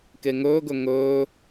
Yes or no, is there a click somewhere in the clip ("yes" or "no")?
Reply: no